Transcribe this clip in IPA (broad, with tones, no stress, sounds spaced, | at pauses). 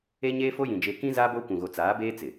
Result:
e˦ ɲ eː˦ f o˦ j ĩ˨ d͡ʒ e˦ k ĩ˦ z aː˦ b oː˦ kʷ ũ˨ ɣ o˨ t͡s aː˨˦ b eː˦ t͡s ɪ˨